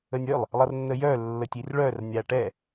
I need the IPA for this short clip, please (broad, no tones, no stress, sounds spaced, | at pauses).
ə nʲ œ lˠ | lˠ ʌ r nː ə j œ lː ə tʲ i r ɭ œ r nʲ a ʈ ɛ